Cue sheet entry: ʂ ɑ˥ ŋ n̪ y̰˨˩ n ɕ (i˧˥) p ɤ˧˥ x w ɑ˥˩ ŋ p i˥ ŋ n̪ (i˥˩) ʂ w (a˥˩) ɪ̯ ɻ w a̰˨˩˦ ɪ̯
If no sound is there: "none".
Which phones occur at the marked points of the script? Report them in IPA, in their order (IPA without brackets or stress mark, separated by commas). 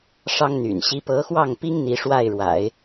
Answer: i˧˥, i˧˥, a˥˩